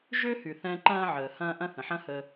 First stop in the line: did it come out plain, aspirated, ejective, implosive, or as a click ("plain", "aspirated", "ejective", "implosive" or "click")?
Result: click